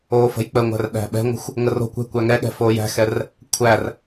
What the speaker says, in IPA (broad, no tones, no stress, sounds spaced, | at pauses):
oː f ə̤ j k͡p ə ŋʷ æ̤ r ɗ æ̤ ɓ ɛ̤ ŋʷ ə̤ xʷ | ŋ ə r o̤ kʷ ɛ̤ kʷ æ ŋ ɛ ɠ ɛ̤ f oː j æ̤ x ɛ r | kʷʰ æ r